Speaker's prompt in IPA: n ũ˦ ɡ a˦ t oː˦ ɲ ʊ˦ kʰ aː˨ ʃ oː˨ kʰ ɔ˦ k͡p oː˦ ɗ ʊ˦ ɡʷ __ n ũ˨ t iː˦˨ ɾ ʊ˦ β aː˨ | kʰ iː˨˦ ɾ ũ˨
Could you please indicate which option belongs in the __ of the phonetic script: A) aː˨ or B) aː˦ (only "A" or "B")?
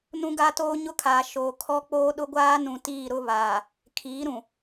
B